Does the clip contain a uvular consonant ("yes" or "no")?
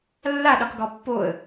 yes